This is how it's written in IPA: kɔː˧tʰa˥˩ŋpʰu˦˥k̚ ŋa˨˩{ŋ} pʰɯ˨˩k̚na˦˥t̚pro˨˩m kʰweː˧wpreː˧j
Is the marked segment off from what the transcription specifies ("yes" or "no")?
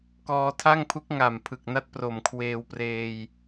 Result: yes